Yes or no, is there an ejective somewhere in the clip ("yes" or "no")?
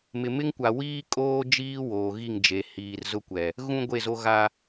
yes